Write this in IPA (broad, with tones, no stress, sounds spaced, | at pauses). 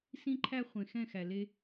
s ĩ˦ ǃʰ æ˦ χʷ ẽ˨ x ɛ̃˦˨ x æ˨ l e˦